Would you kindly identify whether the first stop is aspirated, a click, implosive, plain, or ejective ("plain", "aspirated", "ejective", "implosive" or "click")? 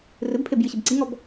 plain